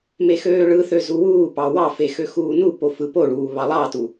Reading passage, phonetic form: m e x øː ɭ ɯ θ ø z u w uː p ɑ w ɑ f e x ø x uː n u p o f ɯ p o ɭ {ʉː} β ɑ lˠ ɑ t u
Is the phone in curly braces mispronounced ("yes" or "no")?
yes